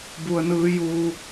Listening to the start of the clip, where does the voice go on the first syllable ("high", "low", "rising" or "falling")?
low